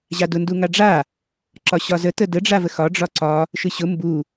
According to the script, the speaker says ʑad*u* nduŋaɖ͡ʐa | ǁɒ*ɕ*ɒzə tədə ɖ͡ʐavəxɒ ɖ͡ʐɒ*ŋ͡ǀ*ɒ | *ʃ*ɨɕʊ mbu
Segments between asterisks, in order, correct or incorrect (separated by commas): incorrect, correct, incorrect, correct